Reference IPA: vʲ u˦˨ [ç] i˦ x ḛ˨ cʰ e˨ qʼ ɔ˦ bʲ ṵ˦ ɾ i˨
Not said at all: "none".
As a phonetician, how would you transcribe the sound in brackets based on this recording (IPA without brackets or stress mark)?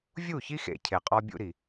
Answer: ç